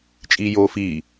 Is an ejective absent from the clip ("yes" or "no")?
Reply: no